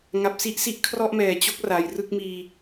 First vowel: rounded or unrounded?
unrounded